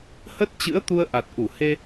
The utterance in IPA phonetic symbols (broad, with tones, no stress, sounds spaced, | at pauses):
h ə˦˥ t̚ t͡ɕ ɨ̰˧˥ ə̯ t̪ u˧ ə̯ ʔ a˨˩ t̚ ʔ u˧˩ h e˧